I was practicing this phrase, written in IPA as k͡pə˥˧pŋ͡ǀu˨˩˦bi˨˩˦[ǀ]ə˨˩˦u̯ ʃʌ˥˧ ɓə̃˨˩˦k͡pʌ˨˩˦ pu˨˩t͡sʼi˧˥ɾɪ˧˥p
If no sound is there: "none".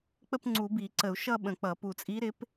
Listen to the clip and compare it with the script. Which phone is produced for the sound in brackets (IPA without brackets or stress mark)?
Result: ǀ